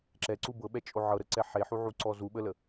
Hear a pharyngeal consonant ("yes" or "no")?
yes